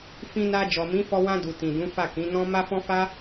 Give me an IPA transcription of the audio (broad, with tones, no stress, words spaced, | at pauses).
fĩ˧na˧ d͡ʒɔ˨mĩ˨˦fɔ˧ wã˧du˨ tĩ˨dũ˨˦fa˦˨ kĩ˨˦nɔ̃˦ ma˦fɔ̃˦ fa˦